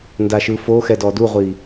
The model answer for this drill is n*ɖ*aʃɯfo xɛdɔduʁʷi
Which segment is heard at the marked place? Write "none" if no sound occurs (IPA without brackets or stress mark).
d